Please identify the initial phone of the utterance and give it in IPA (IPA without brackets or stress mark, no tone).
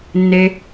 nː